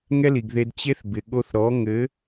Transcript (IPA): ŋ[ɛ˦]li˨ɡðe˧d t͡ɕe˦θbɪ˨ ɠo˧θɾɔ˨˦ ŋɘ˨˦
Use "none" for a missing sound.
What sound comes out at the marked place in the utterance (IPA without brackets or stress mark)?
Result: ɛ˦